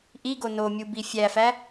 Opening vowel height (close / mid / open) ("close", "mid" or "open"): close